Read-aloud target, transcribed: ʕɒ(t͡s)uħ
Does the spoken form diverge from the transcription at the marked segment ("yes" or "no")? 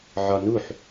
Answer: yes